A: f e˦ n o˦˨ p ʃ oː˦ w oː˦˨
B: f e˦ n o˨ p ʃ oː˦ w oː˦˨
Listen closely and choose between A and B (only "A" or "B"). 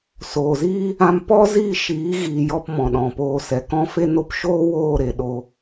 A